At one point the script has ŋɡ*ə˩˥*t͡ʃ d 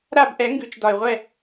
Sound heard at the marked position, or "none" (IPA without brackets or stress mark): ʉ˩˥